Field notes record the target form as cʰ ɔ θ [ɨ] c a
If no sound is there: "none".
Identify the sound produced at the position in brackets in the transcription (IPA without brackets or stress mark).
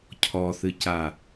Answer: ɨ